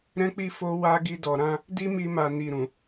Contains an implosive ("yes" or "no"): no